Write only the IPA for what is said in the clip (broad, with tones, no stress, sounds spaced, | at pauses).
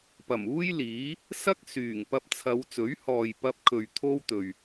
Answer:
p ɐ˨˩ m uː˥ j l iː˨˥ | s ɐ˥ k̚ s yː˨˩ ŋ p ɐ˧ p̚ t͡sʰ ɐ˨˧ w t͡s ɵ˨˥ ɥ h ɔː˨ j p ɐ˧ p̚ kʰ ɵ˨ ɥ t̪ʰ o˥ w t̪ ɵ˨ ɥ